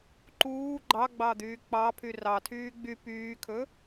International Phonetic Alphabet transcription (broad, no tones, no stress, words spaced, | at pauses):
ǃuː ɡ͡ǃɑɡ͡bɑd̪yː k͡pɑpʰy rɑtʰyː ɡ͡by pyːkʰɵ